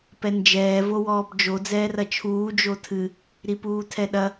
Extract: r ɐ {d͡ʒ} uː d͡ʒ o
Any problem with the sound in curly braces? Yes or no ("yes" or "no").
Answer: yes